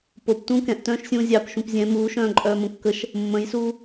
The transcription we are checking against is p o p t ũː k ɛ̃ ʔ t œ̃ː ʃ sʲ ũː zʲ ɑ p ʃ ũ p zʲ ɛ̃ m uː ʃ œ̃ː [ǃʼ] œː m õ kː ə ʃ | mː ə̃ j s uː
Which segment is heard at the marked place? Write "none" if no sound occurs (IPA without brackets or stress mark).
ǃʼ